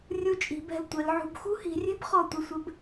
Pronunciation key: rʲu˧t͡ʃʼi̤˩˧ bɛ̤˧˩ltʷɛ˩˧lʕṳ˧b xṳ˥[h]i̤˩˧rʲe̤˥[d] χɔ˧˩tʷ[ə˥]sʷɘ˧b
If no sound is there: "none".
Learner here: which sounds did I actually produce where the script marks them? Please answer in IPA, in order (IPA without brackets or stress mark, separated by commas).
h, b, ə˧˩